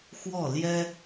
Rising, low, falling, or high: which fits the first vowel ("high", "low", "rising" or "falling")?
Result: falling